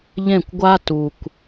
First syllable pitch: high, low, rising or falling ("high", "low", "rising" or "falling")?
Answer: falling